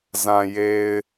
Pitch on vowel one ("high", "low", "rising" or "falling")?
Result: low